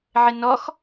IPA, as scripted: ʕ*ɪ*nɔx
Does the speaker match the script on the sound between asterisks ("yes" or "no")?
yes